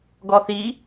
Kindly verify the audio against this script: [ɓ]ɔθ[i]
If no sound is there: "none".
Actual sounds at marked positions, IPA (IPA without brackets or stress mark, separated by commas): ɡ, i